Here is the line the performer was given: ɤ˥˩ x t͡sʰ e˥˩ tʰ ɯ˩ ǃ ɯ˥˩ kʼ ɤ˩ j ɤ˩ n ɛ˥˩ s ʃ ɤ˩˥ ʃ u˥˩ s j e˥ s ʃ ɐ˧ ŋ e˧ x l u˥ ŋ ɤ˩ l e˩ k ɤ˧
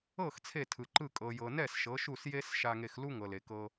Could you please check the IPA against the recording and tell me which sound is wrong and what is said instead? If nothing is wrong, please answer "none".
ɐ˧ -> a˧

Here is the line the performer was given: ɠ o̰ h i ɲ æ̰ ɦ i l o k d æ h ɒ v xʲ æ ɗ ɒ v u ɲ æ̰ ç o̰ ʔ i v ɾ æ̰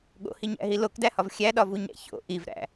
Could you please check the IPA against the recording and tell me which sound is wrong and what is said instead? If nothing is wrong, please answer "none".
none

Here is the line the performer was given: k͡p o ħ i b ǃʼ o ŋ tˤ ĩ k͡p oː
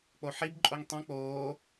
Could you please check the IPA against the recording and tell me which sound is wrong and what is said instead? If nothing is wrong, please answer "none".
none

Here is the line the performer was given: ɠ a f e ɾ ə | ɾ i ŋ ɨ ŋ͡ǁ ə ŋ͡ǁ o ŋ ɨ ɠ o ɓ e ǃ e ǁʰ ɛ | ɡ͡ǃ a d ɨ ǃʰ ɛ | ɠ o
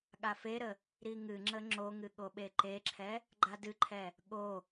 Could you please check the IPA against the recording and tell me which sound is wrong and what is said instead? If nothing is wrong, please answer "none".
none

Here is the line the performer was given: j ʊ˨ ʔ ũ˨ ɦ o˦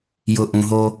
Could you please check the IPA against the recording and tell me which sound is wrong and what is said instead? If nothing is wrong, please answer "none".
none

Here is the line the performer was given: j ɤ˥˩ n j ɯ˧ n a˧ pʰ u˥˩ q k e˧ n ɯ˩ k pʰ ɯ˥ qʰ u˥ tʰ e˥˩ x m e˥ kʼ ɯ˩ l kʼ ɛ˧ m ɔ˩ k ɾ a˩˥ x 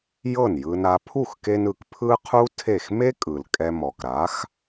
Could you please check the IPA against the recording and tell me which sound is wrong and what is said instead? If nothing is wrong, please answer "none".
q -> x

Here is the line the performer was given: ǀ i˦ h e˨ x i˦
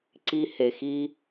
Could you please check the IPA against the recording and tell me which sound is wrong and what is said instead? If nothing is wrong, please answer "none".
none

